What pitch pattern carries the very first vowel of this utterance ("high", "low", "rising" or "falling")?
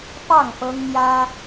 falling